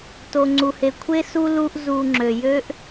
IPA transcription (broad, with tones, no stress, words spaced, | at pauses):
to˩ŋ͡ǀu˩he˩kʷʰe˥ su˥lu˦ʔ zu˨ŋ͡ǁø˩jø˥ʔ